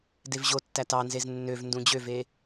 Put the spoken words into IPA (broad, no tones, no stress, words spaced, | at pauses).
devʑo tːætɑnzez nːøv ndũd͡ʑøve